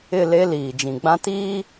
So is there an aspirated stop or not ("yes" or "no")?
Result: no